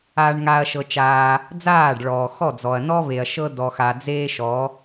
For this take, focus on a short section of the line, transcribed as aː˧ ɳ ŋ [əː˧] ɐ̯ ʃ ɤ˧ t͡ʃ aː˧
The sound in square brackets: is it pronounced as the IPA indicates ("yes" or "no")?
no